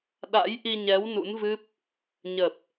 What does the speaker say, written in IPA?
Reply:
ɗ a̰˧˥ j ʔ i˧ ɲ ɛ˨˦ w n ṵ˧˥ n v ɨ˦˥ p̚ | ɲ ə˨˩ p̚

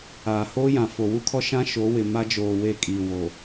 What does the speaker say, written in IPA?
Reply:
aː˨ h oː˦ j ã˨ f o˨ w u˦ kʰ ɔ˦ ʃ ã˦ ʃ o˨˦ w ɪ˨ m a˦ d͡ʒ oː˨ w e˦˨ kʼ iː˨ w o˨

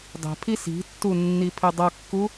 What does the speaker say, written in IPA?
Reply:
dˤ ɛ̤ pʰ i s i̤ tː u nː i pʰ ɪ dˤ ʌ kː u

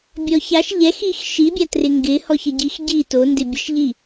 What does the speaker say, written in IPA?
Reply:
bʲ ɔ ç a ʃ ʎ ɛ x i x ʃ i bʲ a t r ɪ ŋ ɡ ɪ h ɔ ç ə ɟ i x ɟ i t o n d ɪ bʲ ə ʃ ʎ i

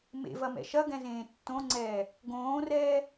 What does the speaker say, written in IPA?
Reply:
m ḛ v ɐ m ɛ̰ ʃ ɐ ɡ ɛ̃ z ẽː tː õ ŋ͡ǀ ɛː | ɡ õː r ɛː

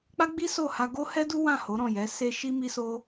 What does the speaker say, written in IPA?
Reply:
k͡p a˦ ɡ͡b i˦ s o˦˨ h a˧ ɡ o˦ h ɛ˦ d u˦ w ã˦˨ h o˨˦ ɾ ɔ̃˦˨ j ɛ˨˦ s e˦ ʃ i˦ m i˦ s o˦

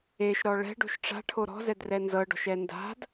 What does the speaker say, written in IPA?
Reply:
e ʃ ɾ ɔ ɭ ɛ̤ ɖ o̤ ʃ ʈ͡ʂ a̤ ʈʰ o ɾ ɔ̤ z ɛ d r ɛ n z ɤ ɖ ɔ̤ ʃ ɛ n d a̤ d

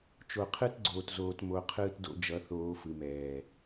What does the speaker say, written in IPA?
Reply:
t͡ʃ o˨ qʰ ɯ˦ t ɡ͡ǀ oː˨ t z oː˨ t m o˨˦ qʰ ɯː˦ t d o̰˦ d͡ʒ ʌ˨˦ θ oː˨˦ f ɯ˨ m ɛː˨

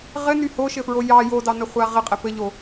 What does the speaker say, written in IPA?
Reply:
ʁ ɘ n y h o ʃ ɘ f ɹ o j ɑ j o d ɑ n ə χʷ a ʁ ɘ qʼ ɘ p ɘ ʎ o

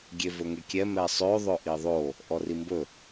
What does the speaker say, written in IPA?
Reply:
ɡʲ e v ɵ ŋ e kʲ ɛ m ɛ sˤ ø ðˤ ɵ ʔ i ðˤ o | ʔ ɔ r i m b ɵ

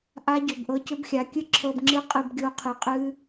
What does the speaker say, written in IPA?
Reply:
ʔ a˦ ɟ ʏ˨ b ʔ ɤ˧ c ʏ˦ b xʲ a˨˦ kʲ ɨ˦ ǁʰ ɤ˧ b ŋ͡ǁ ɨ˦ qʼ ɨ˧ b ɡʲ o˧ qʰ ɨ˨˦ qʼ ɨ˦

